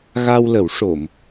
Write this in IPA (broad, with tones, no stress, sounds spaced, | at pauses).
ɣ a˧ w l ə˨˩˦ w ʂ o˨˩˨ m